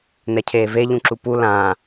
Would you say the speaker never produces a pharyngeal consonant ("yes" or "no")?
yes